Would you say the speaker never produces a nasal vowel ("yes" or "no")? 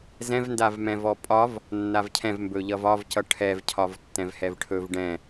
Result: no